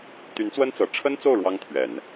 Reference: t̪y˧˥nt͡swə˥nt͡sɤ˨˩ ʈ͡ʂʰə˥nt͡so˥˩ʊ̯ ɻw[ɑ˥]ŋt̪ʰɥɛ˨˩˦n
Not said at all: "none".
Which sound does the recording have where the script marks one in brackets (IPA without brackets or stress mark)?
ɑ˥